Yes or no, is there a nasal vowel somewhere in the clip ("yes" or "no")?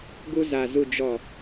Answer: no